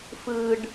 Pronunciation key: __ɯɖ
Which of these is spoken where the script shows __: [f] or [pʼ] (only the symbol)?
f